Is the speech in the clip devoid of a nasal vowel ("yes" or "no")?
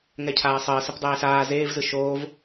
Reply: yes